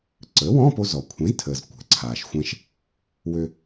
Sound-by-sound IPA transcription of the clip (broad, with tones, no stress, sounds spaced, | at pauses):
ǀ əː˩˥ w ɔ̃˧˥˧ p o˧ z ɔ˩ kʷʰ ẽ˩˥ z tʰ əː˩ z kʷ ɛ̤˩ ǀʰ aː˩ ʃ xʷ ɛ̃˧ ʃ | w ø˧